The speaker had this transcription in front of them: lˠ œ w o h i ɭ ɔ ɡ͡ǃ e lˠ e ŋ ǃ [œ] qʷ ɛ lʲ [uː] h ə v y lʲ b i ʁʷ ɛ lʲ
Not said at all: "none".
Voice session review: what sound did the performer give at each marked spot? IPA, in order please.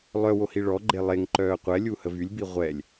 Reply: œː, u

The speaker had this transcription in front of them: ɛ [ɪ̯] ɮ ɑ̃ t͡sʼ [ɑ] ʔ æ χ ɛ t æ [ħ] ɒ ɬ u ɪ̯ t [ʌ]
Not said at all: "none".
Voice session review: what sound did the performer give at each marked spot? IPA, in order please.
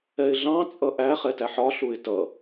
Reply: ɪ̯, ʌ, ħ, ʌ

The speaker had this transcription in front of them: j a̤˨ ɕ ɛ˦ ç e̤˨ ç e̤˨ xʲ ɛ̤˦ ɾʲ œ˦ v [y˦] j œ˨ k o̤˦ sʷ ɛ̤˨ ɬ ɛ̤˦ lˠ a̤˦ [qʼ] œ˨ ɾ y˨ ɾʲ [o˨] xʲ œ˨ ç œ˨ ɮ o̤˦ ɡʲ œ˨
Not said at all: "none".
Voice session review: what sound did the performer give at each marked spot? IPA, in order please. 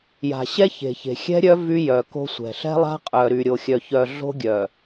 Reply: y˦, qʼ, o˨

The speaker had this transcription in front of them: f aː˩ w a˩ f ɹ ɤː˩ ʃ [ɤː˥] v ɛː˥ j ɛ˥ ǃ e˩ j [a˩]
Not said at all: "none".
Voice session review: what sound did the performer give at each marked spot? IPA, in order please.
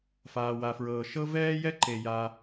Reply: ɤ˥, a˩

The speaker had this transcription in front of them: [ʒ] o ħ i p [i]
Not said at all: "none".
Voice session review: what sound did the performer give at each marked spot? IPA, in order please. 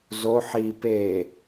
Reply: z, e

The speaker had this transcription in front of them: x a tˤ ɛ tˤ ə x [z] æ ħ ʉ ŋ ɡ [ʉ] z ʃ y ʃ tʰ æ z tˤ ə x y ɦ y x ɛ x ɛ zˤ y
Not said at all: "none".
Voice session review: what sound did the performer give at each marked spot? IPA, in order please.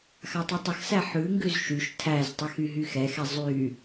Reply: s, ʉ

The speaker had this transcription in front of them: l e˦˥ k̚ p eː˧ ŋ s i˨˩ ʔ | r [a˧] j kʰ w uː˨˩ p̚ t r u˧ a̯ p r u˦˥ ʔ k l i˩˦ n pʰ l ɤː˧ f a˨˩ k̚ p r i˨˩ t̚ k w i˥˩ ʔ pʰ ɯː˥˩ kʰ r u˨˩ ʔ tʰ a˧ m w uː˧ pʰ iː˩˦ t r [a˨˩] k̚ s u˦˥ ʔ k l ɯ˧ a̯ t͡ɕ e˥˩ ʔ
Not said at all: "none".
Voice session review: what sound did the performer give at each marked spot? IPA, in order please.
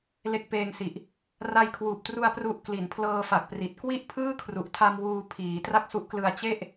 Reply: a˧, a˥˩

